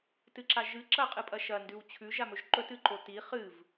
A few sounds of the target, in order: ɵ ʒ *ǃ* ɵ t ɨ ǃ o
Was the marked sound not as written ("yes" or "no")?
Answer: no